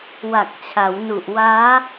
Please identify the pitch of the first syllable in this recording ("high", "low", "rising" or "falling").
low